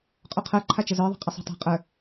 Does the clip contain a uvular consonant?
yes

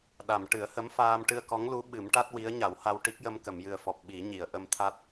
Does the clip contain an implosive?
yes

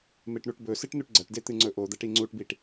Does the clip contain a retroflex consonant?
yes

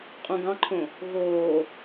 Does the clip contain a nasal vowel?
yes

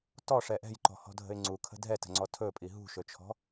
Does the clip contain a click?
yes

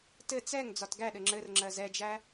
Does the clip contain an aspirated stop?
no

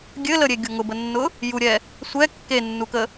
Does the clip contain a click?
no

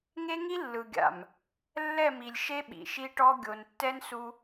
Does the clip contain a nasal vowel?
no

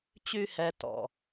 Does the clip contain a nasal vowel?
no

